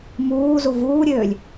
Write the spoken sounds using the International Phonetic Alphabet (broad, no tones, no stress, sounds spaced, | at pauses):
m uː z u v uː ɾʲ øː lʲ